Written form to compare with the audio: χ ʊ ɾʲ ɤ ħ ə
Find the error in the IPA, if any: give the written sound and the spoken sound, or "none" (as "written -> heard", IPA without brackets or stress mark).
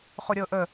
ħ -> ʔ